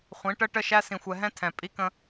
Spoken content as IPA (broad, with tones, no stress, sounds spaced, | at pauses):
χʷ ĩ˨˦ ʈ ə˦ ʈ ə˦ ʃ æ˦ s ĩ˨ xʷ ɛ˨ ɦ ɛ̃˦ tʰ ɛ̃˨ pʼ i˦ k ə̃˦